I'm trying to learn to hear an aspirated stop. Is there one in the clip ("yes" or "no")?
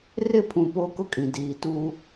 yes